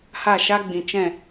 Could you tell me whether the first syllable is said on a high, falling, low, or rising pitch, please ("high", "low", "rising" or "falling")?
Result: falling